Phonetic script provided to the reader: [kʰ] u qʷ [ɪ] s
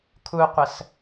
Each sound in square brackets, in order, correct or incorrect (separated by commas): correct, incorrect